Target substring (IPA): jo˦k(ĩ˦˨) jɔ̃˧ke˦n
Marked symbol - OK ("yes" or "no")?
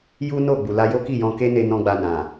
no